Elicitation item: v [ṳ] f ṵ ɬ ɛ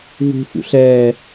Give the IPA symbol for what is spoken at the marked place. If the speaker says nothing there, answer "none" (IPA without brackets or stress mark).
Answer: ṳ